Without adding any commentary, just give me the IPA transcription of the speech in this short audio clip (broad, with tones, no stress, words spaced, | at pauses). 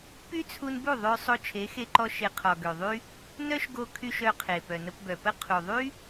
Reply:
py˦t͡sʰu˧nbu˦˨ ðˤø˧ sˤo˧t͡ʃʰe˨˦xe˧ǃɔ˧ ʃe˨ qʰɔ˨ɡø˨ðˤy˦ | nœ˦ʃɡo˧kʰy˧ʃ œ˧qʰe˨ pœ˨nə˧pbœ˨pə˦ qʰu˨ðˤy˦